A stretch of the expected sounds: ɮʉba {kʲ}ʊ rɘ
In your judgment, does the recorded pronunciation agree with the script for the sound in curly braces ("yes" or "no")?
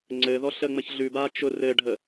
no